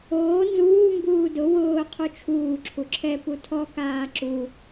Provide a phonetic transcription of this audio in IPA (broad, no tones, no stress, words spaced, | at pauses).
oː nzuː mbuːdʊ wʊː qʰut͡ʃʰuː ǁʰuǁʰɛ putʰɔkaː ǁu